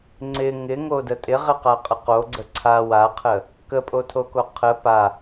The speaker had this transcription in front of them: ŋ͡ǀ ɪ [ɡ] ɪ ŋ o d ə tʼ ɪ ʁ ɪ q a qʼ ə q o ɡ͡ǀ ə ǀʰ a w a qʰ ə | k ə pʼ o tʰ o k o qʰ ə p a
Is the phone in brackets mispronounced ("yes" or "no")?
yes